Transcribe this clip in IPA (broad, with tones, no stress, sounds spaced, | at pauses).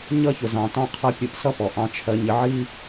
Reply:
ɲ ʌ˥ ç ʊ˩ z ɑ̃˩ t ɑ̃˥ qʰ ʌ˥ pʲ u˧ ʔ s ʌ˥ p ɔ˩ ʔ ɑ̃˧ t͡ʃʰ ɜ˧ ɲ ɪ˧ ʕ i˥